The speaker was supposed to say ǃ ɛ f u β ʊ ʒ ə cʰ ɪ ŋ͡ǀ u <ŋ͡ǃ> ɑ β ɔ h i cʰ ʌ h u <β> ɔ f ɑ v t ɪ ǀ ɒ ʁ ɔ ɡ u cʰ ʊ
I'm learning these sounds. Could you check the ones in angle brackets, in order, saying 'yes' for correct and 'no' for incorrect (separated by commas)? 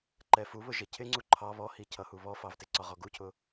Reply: no, yes